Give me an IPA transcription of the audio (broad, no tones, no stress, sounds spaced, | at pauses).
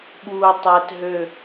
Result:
ɓ uː tˤ ɛ t ɦ ø